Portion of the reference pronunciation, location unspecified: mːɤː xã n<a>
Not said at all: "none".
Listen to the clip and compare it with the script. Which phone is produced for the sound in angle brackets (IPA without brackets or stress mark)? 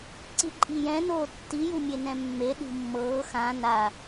a